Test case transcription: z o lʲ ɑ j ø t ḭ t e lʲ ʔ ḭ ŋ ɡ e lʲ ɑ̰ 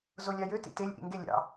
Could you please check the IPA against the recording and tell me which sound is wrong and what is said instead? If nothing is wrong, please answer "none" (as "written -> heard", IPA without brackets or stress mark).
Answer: none